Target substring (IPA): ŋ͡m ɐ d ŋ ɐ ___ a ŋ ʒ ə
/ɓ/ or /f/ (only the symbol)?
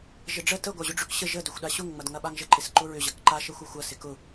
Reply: ɓ